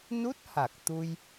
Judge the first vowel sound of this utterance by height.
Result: high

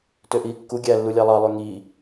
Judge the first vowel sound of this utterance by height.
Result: mid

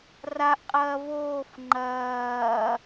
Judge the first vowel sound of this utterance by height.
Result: low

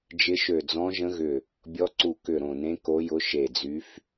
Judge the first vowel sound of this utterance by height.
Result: high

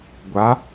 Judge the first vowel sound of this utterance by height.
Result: low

